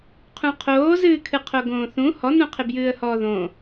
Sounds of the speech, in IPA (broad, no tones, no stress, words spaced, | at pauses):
qʰũqʰoːzɨːkʰɨ qʰoɡõːθũ hɔnũqʰɪ bjɨːə̯hɔːðõ